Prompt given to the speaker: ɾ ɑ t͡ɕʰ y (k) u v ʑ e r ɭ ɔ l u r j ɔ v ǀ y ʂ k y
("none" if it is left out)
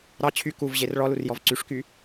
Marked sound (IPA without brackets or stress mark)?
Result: k